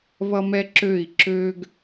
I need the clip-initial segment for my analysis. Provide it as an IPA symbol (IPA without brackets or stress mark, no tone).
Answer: β